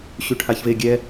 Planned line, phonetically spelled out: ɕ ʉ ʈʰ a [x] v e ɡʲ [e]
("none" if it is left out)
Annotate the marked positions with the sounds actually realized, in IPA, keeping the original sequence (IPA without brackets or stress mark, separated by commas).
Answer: ç, ɛ